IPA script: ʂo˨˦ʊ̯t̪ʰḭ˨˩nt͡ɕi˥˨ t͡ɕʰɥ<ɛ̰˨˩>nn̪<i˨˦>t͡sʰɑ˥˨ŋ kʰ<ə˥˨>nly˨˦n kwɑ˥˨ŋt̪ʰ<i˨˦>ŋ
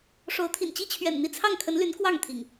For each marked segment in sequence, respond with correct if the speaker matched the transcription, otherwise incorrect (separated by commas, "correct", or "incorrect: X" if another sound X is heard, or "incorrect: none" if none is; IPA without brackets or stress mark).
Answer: correct, incorrect: i˥˨, incorrect: ə˨˦, incorrect: ḭ˨˩